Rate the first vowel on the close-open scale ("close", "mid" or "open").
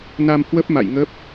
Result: open